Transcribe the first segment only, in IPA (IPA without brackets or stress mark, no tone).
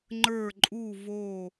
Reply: ŋ͡ǃ